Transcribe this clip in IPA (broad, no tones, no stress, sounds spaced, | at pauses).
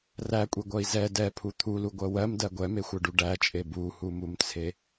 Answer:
r æ kʷʼ e ɡʷ ɜ i̯ z ɛ d ɛ pʰ u t̪ʰ u l u ɡʷ ɜ w ɜ m d ɜ ɡʷ ɛ m e xʷ ɜ ɖ u ɖ æ t͡ʃʼ e b u h u m u m t͡sʰ e